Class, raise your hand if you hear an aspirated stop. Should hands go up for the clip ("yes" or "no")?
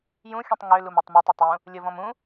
no